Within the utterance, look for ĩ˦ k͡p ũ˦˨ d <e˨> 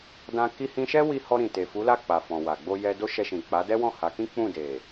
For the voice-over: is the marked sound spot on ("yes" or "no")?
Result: yes